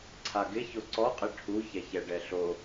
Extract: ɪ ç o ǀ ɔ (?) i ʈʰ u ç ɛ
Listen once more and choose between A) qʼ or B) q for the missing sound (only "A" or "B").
A